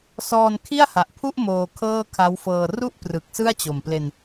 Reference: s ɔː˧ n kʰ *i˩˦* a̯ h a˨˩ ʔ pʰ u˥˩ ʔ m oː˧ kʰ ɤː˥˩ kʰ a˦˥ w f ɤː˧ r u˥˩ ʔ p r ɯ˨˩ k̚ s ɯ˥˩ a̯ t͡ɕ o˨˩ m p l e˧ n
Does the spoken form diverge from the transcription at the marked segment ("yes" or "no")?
yes